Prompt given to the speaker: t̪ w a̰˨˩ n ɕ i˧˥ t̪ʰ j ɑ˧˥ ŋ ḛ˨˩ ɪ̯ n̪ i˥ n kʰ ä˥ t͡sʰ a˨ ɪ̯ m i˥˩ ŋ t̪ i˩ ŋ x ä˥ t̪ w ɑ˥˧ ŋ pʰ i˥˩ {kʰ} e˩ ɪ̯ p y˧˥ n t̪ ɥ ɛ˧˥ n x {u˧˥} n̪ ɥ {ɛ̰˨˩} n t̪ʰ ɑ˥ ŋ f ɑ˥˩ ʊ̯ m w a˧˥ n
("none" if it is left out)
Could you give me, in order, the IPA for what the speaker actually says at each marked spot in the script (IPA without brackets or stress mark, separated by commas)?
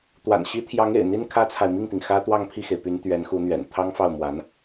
x, u˧˥, ɛ̰˨˩